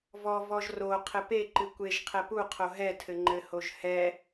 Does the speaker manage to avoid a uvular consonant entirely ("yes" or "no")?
no